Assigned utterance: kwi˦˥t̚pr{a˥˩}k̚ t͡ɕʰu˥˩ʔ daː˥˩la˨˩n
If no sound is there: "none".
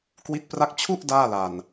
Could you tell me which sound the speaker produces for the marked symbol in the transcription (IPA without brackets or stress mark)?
a˥˩